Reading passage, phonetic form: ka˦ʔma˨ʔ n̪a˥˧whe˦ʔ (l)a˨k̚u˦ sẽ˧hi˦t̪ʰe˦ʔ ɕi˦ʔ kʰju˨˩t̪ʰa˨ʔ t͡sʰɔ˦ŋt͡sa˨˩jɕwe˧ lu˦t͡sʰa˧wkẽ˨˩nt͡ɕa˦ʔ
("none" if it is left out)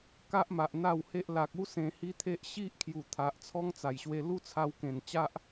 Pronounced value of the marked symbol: l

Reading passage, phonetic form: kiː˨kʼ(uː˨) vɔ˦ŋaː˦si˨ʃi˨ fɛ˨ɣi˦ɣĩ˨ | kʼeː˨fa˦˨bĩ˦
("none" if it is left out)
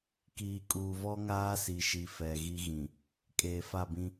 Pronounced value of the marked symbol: uː˨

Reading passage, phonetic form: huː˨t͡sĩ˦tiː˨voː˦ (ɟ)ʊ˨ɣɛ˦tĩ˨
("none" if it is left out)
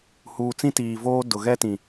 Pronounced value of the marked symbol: d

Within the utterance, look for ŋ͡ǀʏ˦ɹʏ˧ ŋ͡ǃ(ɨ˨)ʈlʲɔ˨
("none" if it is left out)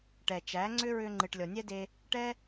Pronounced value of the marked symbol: ɨ˨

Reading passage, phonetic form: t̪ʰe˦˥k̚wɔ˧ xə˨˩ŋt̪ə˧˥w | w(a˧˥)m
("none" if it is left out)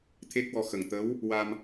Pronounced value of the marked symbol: a˧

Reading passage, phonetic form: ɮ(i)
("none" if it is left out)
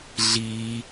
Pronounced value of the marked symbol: i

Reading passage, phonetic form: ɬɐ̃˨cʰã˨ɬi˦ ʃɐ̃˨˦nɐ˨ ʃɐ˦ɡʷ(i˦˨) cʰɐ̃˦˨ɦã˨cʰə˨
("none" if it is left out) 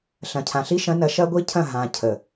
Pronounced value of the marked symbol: i˦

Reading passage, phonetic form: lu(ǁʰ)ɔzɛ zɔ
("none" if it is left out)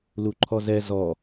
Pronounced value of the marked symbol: ǃʰ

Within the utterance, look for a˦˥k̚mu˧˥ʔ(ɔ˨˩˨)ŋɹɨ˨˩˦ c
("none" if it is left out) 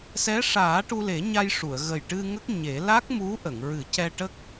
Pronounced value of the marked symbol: ə˨˩˨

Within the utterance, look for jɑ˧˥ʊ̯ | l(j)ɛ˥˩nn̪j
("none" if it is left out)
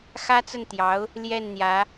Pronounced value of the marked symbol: j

